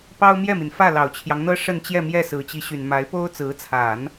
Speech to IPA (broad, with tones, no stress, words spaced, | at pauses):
pɑ˥ʊ̯mjɛ˥˩mi˩nfä˥˩ lɑ˨˩ʊ̯t͡ɕʰjɑ˦ŋ n̪ɤ˥ʂə˥˧nt͡ɕjɛ˥˧mjɛ˥˩ sɹ̩˨˩t͡ɕi˧˥ɕy˨˩n ma˧˥ɪ̯po˥ʊ̯ t͡sɹ̩˧˥t͡sʰa˨˩˦n